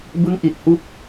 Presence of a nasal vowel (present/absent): absent